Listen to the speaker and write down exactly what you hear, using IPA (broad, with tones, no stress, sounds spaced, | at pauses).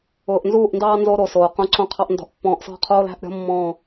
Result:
ʊː˨ ʔ n z uː˦˨ ʔ n d ɑː˦ n z o˦ ɾ o˨ s oː˨ q õ˦ ǀ õ˦ qʰ ɑ˦ ʔ n d ɔ̤˨˦ ʔ pː ɔ̃ː˨ ʔ s ɔ̤˦˨ qʰ oː˦ l æ̤˦ ʔ ɾʲ ɔ̤˦ mː ɔ̃ː˦˨